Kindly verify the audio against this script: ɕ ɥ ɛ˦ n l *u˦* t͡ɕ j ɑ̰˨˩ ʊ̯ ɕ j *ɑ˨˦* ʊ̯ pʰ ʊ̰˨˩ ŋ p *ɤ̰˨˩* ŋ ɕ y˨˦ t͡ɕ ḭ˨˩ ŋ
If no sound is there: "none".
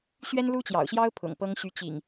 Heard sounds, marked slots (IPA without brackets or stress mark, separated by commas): u˦, ɑ˦, ɤ˦